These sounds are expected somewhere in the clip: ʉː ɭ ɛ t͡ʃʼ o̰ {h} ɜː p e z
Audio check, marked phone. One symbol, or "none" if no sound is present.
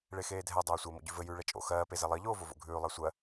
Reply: x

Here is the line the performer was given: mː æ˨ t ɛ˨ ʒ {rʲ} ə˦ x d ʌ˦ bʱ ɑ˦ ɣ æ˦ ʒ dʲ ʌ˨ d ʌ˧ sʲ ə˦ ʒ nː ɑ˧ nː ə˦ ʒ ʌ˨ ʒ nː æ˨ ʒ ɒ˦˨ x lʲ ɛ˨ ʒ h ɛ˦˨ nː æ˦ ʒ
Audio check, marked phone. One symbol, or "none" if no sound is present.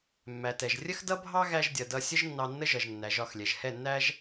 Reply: rʲ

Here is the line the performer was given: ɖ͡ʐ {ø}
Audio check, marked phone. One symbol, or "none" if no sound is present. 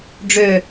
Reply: ø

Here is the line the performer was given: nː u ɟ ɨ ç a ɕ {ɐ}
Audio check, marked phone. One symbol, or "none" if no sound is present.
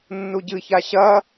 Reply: ɐ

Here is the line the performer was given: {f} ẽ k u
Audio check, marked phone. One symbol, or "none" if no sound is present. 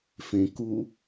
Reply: f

